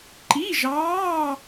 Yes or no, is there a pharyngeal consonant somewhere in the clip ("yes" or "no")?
no